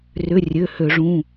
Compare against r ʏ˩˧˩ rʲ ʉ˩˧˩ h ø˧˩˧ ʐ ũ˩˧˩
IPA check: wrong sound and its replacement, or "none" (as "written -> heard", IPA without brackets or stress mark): ʉ˩˧˩ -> ø˩˧˩